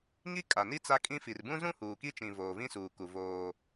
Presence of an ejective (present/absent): present